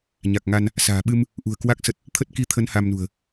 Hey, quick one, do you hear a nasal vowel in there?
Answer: no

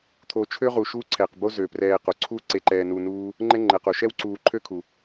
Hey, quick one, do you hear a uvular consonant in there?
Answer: yes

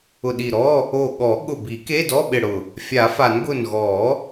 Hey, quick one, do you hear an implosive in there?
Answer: yes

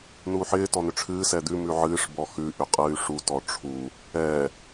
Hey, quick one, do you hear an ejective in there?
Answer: yes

